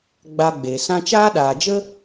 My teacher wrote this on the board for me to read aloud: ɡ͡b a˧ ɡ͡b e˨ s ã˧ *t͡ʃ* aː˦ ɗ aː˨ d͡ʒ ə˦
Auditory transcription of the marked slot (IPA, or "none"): t͡ʃ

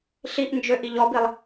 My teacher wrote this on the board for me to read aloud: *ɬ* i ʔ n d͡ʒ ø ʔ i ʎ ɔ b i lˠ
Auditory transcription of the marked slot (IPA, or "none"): ɬ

